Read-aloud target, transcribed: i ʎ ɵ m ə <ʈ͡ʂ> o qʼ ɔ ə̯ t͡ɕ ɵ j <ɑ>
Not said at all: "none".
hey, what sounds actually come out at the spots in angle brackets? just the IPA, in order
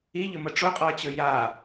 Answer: ʈ͡ʂ, a

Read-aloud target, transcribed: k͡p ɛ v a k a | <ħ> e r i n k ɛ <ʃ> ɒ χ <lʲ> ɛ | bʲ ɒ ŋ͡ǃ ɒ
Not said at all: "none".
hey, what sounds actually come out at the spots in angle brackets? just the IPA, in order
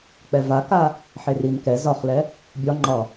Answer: ħ, z, l

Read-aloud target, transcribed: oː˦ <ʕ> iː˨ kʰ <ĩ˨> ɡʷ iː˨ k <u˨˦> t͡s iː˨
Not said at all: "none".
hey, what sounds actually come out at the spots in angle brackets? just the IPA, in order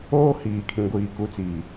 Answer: h, ĩ˨, u˨˦

